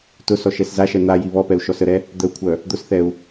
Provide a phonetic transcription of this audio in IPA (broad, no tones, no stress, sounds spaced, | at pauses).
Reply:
t ʊ s ɔ ʃ ɛ s z a ʃ ɛ n̪ a j i β ɔ p ɛ u̯ ʃ ɔ s ə ɾ ɛ | d̪ ə u̯ kʷʰ œ | d̪ ʊ s θ ɛ u̯